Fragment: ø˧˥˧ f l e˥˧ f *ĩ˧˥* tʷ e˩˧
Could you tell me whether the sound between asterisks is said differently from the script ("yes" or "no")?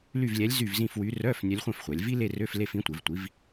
no